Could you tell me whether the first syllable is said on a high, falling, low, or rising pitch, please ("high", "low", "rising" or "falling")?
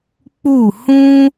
falling